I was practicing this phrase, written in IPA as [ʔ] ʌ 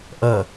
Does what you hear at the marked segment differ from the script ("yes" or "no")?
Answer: no